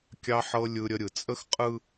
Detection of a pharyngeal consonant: present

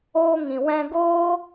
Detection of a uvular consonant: absent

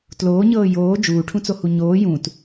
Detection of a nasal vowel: present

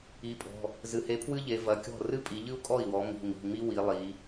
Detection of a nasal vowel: absent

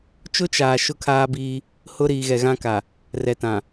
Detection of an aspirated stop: present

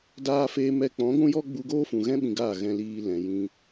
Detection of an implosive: present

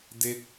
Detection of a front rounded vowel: absent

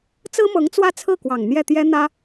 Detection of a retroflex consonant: absent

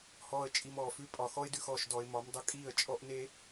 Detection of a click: absent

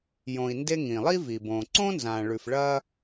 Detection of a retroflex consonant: present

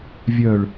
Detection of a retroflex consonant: present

